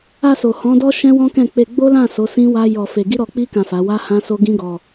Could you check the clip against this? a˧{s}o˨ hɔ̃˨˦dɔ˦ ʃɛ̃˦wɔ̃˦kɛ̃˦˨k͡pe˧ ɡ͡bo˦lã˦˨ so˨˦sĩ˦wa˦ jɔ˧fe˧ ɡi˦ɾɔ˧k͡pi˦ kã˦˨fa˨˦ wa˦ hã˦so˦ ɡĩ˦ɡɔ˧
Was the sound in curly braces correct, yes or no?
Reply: yes